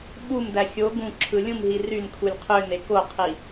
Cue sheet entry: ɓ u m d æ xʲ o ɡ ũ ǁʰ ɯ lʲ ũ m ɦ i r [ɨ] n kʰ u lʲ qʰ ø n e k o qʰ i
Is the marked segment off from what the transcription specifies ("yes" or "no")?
yes